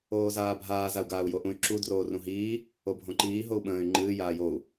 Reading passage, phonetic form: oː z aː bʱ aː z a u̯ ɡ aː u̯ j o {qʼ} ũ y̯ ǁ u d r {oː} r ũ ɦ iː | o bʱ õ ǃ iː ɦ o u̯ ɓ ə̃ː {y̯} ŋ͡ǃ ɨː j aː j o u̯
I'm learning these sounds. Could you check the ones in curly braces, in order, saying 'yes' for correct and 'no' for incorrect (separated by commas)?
no, yes, yes